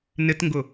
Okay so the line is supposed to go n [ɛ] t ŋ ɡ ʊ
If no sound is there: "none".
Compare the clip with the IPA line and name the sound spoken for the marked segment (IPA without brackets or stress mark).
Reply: ɪ